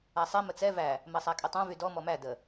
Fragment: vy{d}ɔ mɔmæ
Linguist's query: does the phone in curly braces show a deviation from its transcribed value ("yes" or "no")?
no